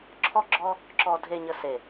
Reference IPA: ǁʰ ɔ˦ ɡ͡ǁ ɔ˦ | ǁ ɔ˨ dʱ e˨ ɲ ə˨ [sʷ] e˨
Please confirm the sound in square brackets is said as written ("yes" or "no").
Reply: no